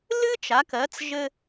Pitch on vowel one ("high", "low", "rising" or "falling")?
high